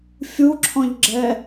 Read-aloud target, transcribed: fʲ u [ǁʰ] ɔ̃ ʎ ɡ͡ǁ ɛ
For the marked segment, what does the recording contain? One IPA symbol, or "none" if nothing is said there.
ǁʰ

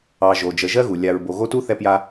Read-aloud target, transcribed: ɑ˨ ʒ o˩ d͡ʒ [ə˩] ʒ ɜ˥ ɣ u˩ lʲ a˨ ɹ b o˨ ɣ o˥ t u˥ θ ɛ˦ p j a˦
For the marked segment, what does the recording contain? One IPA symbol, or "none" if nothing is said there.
ə˨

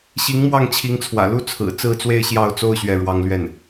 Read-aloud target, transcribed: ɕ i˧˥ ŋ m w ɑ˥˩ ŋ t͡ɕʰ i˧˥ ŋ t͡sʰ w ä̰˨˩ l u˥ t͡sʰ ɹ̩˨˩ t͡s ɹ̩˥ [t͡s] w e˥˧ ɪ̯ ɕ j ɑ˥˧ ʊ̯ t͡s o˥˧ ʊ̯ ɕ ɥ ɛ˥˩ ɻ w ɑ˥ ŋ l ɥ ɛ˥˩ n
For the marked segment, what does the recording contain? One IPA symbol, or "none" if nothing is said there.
t͡s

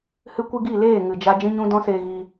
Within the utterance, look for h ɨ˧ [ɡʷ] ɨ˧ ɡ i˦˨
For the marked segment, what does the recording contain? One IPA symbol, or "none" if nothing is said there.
kʷ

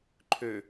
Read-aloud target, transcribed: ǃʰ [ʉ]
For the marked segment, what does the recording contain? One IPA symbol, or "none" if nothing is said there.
ø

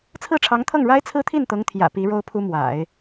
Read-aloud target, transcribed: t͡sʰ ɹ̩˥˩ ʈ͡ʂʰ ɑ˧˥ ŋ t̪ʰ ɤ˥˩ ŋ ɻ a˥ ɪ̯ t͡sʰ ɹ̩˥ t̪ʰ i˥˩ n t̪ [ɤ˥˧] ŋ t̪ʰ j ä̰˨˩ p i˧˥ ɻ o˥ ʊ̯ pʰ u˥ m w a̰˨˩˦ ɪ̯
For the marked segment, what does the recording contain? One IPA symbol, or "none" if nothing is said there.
ɤ˧˥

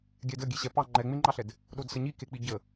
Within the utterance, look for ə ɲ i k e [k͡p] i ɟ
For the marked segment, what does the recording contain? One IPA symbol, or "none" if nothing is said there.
k͡p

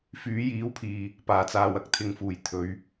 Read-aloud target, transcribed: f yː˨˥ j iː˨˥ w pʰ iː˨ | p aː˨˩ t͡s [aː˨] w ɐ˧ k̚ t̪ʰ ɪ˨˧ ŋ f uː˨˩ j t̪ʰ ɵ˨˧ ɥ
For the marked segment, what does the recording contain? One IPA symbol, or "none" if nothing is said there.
aː˨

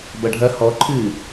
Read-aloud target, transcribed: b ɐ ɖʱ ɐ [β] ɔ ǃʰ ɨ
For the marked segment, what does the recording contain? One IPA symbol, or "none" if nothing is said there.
h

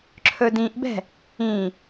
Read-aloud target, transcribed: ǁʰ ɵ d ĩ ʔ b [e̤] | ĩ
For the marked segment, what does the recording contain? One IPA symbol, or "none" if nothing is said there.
ɛ̤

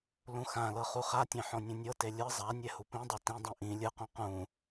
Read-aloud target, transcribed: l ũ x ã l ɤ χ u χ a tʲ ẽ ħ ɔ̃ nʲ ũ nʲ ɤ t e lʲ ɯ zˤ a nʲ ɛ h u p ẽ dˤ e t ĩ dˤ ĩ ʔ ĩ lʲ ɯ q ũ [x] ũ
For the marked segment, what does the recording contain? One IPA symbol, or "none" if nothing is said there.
q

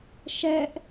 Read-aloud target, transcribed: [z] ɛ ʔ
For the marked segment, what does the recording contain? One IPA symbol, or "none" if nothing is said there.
ʃ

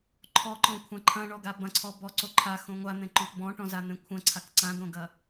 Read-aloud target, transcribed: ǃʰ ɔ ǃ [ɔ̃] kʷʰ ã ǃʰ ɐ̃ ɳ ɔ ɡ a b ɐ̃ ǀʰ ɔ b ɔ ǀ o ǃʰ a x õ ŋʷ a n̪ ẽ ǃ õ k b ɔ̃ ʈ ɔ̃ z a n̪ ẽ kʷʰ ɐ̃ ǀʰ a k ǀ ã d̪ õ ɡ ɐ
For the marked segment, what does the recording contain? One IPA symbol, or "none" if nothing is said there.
ɔ̃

